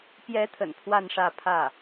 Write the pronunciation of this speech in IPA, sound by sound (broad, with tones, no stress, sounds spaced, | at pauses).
p j ɛ˧˥ t̪ʰ ə̰˨˩ n pʰ w a˥˧ n ʂ ä˥˧ pʰ ä˥˩